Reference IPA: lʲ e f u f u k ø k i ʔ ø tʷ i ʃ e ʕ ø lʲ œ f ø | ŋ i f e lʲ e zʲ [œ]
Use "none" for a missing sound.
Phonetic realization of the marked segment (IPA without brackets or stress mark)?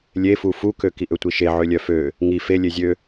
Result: ø